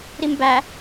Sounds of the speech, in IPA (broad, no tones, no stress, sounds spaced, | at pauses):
ɾ i m b æ